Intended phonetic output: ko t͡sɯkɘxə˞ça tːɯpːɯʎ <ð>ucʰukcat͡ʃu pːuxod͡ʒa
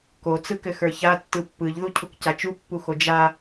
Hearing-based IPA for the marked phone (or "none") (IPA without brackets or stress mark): ð